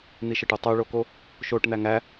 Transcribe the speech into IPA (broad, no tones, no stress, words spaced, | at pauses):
n̪iʃəʈu tˤuɭoko | ʃoʈn̪æ ŋæ